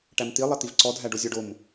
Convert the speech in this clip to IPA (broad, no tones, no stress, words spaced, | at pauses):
ʈæmt̪ilˠɛ t̪ivǀɔ dʱæɖozʲɔɖom